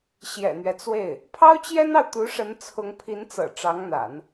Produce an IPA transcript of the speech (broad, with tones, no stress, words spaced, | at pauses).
ɕjɛ̰˨˩n̪ɥɛ˦t͡swe˥˩ɪ̯ | pʰɑ˥ʊ̯t͡ɕjɛ˥nɑ˨ʊ̯ t̪u˧˥ʂə˧˥n t͡sʰʊ˧˥ŋpʰi˧˥nt͡sɤ̰˨˩ ʈ͡ʂɑ˧˥ŋn̪a̰˨˩˦n